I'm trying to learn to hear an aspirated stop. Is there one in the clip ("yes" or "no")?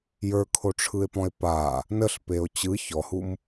yes